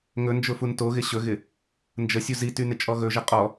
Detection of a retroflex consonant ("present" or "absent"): absent